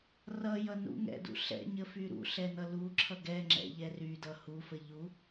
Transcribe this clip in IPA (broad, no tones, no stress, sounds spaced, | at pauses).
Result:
r ʌ j ʌ n ṵ ŋ ɛ̰ d ṵ ɬ ɛ̰ ɲ ə f y ɾ ṵ ɬ ɛ n ʌ l u ǁʰ ʌ ɡ ɛ ŋ͡ǁ ɛ̰ ʎ ɛ r y d ʌ h u f ə ʎ u